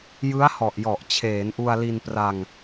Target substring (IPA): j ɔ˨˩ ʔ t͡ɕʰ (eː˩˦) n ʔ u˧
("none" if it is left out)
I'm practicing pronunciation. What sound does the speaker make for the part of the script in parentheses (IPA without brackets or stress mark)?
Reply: eː˩˦